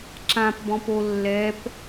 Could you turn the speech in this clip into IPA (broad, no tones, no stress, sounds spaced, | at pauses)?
ǁ ã p b ɔ̃ p o lː ɛ p